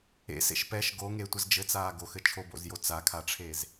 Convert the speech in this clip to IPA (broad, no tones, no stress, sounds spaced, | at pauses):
ḛ s ḛ ʃ p ɛ ʃ ɡ o ŋ e tʷ ɘ z d͡ʒ ɘ t͡s aː ɡ o x ɘ t͡ʃʰ o b o̰ z j o t͡s a kʰ a ʈ͡ʂʰ eː z